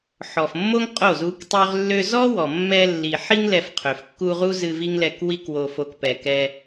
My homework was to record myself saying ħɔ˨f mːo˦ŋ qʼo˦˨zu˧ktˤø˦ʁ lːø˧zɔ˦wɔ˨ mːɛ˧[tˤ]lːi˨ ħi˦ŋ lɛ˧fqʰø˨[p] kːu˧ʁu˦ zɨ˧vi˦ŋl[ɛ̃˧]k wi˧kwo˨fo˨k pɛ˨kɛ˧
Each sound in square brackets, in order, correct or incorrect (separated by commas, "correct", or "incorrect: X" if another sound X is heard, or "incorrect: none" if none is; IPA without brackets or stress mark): incorrect: none, incorrect: f, incorrect: ɛ˧